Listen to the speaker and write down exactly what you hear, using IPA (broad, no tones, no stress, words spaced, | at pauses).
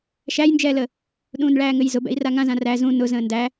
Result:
ʃæjnd͡ʒɛːlə | ɗũːnɭæːŋɘjzʊ bɛ̰i̯raŋãzã ræ zũ nʊzə̃ː ndæ